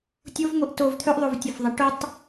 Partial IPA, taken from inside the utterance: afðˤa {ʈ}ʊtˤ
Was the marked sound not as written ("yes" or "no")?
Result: no